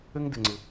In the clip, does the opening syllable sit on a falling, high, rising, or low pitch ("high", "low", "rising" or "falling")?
high